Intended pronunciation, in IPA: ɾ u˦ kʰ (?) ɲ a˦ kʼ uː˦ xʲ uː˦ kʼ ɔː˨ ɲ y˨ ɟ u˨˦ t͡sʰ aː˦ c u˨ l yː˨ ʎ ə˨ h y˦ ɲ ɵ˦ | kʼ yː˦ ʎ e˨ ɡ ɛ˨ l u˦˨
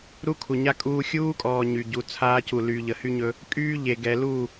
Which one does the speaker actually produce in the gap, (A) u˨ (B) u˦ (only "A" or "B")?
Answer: A